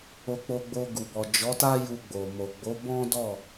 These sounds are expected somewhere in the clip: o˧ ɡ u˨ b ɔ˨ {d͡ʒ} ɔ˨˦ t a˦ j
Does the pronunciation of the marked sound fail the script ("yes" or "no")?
no